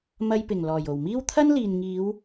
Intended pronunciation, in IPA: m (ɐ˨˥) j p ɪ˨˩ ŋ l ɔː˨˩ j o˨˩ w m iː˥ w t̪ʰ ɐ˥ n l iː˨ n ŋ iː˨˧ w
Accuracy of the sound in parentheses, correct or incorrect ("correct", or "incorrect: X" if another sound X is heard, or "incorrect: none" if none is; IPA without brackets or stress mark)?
incorrect: ɐ˧